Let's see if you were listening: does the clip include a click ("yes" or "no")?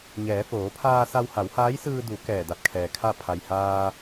no